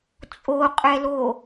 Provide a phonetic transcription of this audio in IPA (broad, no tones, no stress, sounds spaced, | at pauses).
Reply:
t͡sʼ o qʼ ɛ l o